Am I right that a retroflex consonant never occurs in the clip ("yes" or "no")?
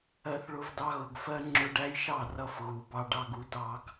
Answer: no